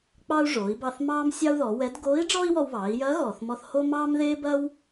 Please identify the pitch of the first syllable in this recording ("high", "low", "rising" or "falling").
high